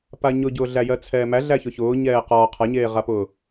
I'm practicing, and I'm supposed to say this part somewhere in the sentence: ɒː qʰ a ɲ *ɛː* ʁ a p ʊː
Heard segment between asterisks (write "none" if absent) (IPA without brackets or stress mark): eː